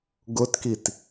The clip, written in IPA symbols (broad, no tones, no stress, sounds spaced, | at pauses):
ɡ ʊ t k i t